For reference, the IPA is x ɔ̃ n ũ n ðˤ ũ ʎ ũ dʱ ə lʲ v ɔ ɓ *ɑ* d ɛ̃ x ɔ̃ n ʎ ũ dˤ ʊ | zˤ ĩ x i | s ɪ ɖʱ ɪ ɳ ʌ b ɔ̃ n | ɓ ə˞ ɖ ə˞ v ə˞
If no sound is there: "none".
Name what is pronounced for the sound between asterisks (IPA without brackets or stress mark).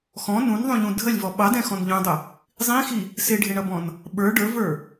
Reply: ɑ